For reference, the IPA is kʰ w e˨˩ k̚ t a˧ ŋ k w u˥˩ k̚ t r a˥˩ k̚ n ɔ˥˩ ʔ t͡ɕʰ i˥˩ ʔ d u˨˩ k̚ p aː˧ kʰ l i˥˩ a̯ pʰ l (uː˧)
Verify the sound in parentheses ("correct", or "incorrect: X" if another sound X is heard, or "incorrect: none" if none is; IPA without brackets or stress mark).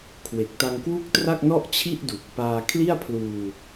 correct